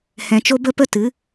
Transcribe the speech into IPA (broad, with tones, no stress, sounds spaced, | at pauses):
h ɛ̃˧ t͡ʃ o˦ b ə˦ p ə˦ t ɨ˨˦